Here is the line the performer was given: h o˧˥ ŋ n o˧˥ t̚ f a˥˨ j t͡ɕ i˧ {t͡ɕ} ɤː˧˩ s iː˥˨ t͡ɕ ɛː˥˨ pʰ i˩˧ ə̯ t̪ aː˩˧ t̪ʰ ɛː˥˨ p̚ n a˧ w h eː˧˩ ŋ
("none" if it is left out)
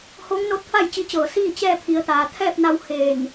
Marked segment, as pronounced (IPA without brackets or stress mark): t͡ɕ